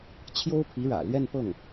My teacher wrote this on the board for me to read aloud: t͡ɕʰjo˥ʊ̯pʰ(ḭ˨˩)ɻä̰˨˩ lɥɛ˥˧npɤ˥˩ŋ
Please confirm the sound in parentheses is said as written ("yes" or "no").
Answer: no